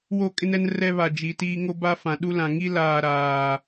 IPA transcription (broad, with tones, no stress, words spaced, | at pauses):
wo˦˨kʼɪ˦nɛ˦n rɛ˦βa˨ d͡ʒi˨tiː˦ ŋo˦ba˦fã˨ ɗu˦lã˨ ŋi˦ laː˨ɾaː˨